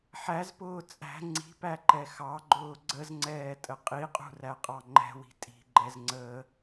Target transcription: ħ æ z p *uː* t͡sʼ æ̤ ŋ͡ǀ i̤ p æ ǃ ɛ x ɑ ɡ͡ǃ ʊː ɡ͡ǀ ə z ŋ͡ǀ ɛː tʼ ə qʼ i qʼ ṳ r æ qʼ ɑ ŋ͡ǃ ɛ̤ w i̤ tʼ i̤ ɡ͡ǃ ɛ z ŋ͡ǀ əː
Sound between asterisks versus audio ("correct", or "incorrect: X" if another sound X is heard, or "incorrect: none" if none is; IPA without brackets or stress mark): incorrect: ʊː